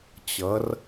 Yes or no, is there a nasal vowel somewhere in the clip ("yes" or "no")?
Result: no